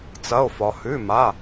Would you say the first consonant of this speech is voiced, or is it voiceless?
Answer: voiceless